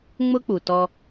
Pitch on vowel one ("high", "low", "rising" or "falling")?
high